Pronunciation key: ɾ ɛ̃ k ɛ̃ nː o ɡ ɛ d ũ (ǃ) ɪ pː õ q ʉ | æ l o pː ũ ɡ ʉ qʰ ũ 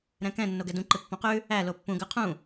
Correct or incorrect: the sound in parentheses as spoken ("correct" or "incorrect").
correct